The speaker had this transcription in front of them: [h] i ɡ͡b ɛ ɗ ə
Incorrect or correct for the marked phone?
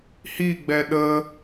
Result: correct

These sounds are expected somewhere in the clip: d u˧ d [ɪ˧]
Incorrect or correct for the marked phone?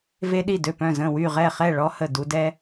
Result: incorrect: ɛ˧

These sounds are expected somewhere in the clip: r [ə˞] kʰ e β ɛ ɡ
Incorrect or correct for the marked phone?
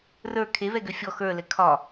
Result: correct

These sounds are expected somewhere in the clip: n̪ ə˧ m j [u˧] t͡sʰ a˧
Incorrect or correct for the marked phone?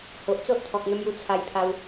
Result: correct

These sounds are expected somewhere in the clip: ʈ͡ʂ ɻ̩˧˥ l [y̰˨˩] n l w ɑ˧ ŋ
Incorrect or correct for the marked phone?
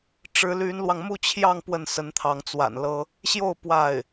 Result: incorrect: y˧˥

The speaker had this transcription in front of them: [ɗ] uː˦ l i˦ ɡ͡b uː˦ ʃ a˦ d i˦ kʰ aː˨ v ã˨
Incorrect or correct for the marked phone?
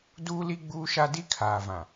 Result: incorrect: d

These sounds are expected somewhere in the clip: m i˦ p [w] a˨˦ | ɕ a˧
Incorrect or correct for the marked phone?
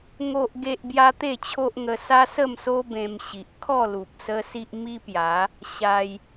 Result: incorrect: j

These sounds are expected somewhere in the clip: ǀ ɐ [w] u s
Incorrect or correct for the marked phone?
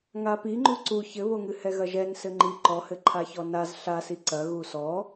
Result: incorrect: ɣ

